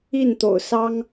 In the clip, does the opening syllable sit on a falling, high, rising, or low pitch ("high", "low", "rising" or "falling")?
falling